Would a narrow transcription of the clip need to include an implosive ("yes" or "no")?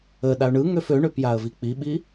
yes